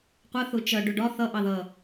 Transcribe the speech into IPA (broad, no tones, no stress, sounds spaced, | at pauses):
qʷ ə θ ʊ t͡ʃ ʌ ɖ ʊ ɖ ɒ θ ʌ ʔ ɑ ð ʌ